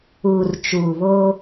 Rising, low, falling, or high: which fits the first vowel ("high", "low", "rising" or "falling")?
low